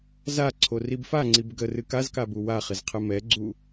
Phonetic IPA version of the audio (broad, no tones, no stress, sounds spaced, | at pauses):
z a ǀʰ o r i b f a ŋ͡ǀ i b ɡ ə r ɨ k a z k a b u w a χ ɪ z qʰ ɨ m ɛ ɡ͡ǀ u